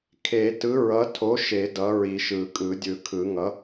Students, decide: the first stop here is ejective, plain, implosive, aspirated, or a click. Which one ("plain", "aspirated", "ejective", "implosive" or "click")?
aspirated